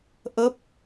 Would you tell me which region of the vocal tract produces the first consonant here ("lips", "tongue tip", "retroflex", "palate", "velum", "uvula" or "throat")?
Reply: throat